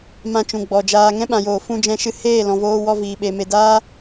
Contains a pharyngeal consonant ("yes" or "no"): no